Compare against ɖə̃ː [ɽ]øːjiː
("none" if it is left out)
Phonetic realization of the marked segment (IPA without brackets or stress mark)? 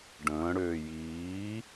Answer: ɽ